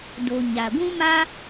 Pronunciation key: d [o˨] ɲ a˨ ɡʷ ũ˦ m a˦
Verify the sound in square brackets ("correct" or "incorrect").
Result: correct